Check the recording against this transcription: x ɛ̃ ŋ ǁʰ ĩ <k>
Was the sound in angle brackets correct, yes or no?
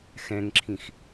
no